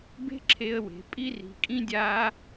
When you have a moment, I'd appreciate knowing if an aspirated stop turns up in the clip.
yes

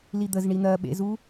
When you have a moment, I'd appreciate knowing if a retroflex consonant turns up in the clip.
yes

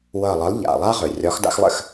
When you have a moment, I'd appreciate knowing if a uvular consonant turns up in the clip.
yes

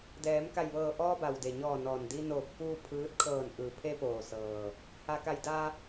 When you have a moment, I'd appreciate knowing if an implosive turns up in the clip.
no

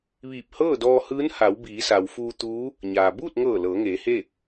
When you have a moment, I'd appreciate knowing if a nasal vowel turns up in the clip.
no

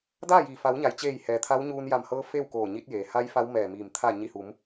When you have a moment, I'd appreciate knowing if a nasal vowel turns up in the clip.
no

